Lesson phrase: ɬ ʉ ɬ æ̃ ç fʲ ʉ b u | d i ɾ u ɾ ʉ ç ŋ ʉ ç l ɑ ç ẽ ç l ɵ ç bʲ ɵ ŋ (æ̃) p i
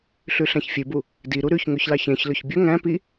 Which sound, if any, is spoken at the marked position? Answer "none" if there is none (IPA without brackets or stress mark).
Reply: æ̃